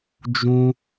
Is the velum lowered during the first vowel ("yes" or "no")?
yes